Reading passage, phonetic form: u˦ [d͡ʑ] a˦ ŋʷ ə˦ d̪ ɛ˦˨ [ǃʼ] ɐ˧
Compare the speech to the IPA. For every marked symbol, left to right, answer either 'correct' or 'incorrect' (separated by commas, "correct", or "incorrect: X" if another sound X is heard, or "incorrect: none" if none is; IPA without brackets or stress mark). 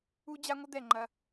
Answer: correct, incorrect: ŋ͡ǃ